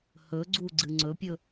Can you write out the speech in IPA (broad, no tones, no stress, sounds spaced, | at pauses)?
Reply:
h ɵ ɡ͡ǀ u ɡ͡ǀ ɨ ŋ͡ǀ ɵ pʲ ɵ